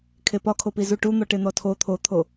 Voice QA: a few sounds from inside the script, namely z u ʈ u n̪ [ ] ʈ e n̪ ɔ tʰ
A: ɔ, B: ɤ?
A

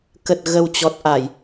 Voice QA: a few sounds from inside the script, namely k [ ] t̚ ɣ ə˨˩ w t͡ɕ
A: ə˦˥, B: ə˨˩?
B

